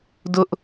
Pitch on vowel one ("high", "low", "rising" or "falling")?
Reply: high